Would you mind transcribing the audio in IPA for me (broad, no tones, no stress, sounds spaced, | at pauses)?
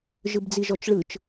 ʒ ɯ b d͡z i ʒ ɔ t͡ʃ ɭ ɯ t͡ʃ